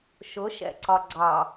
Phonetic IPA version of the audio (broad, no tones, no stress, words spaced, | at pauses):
ʃʊʃɛ̰ǀɒ ɡ͡ǀɑ